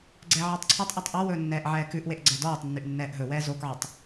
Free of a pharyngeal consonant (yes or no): no